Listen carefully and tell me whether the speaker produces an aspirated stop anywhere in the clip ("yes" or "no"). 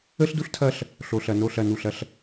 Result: yes